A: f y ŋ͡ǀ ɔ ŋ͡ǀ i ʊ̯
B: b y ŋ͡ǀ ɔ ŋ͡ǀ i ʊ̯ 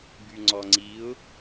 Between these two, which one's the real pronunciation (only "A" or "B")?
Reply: B